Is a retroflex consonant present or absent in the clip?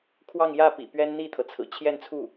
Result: absent